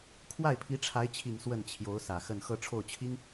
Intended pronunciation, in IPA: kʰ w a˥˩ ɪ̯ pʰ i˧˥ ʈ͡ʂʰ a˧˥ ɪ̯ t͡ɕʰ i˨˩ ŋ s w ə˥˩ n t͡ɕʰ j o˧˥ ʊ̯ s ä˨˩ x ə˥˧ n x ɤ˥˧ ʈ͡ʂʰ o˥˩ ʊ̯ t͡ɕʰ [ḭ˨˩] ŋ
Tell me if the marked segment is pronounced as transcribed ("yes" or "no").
no